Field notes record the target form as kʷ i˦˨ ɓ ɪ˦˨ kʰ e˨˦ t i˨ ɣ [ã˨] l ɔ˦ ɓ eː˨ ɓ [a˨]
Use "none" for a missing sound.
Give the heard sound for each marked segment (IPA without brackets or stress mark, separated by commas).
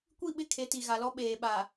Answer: a˨, a˨